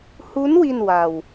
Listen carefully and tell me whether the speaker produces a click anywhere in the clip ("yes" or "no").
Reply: no